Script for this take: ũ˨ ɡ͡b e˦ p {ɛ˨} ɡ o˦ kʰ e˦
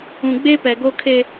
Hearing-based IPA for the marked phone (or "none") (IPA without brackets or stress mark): ɛ˨